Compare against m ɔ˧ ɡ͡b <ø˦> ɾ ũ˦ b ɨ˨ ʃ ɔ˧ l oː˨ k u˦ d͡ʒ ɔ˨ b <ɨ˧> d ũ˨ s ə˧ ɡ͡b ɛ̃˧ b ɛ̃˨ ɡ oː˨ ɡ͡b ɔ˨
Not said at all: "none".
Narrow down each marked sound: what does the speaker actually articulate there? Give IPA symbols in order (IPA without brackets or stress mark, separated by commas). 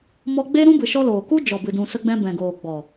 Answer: e˦, ɨ˨